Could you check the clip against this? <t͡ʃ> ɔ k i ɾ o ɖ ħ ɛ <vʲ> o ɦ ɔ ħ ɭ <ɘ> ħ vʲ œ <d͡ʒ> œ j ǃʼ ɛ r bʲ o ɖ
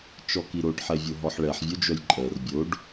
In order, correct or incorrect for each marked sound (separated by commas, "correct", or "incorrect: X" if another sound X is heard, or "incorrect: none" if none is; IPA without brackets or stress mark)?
correct, correct, incorrect: ɛ, correct